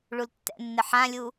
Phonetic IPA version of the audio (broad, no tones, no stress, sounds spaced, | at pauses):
ɭ u l tː ɛ̰ nː ɪ ħ ã lʲ u